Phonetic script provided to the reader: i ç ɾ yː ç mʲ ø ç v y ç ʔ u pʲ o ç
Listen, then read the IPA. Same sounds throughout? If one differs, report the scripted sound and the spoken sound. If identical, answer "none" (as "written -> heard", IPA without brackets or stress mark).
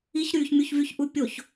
ø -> u